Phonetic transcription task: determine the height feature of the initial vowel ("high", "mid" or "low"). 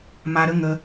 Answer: low